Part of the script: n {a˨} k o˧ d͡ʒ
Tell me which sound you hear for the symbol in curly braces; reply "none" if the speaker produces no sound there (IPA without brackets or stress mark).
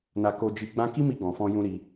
a˧